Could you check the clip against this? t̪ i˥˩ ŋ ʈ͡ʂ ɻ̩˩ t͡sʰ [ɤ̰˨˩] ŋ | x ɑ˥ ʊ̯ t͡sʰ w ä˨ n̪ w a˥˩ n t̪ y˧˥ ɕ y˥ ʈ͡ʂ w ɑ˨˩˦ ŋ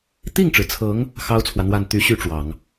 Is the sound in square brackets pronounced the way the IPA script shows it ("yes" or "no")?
no